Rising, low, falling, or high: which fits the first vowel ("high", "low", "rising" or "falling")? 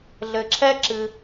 low